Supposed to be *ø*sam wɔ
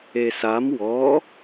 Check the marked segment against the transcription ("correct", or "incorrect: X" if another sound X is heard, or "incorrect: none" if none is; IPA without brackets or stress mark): incorrect: e